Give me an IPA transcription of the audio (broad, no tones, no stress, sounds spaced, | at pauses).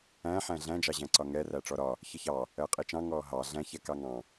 æ̃ ħ æ̃ ɮ æ̃ d͡ʒ ɑ ʑ æ̃ ǀ ɒ ŋ ɛ r æ ʈ͡ʂ ɔ ɾ ɒ | ç ə ç ɑ | ɜ qʼ i t͡ʃ ɑ̃ ŋ ɔː ɦ ɑ ɮ æ̃ ç ɛ k ɑ ŋ ɑ̃